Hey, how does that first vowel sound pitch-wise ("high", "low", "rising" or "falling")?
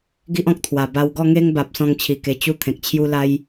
high